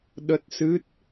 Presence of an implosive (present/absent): present